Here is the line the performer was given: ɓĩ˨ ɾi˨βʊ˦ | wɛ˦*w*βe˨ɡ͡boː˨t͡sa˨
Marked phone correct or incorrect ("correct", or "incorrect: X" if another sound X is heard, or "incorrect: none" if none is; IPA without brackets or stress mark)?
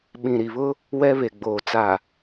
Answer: incorrect: none